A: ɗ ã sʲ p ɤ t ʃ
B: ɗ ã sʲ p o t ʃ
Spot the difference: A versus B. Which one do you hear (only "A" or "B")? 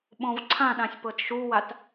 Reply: A